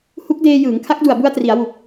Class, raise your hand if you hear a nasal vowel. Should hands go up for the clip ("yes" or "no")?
no